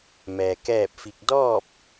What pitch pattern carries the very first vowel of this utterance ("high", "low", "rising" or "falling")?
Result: low